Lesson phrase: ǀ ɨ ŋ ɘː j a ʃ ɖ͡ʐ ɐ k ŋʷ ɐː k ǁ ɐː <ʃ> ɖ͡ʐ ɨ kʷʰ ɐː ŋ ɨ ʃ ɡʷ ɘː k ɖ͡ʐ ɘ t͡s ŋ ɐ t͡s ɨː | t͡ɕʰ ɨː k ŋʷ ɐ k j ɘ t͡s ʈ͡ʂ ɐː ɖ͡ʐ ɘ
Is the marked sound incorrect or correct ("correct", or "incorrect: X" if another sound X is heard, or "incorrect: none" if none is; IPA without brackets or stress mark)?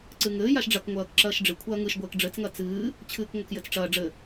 correct